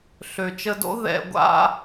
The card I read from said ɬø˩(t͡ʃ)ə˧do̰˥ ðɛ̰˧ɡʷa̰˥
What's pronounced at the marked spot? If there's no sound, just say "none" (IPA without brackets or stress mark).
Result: t͡ʃ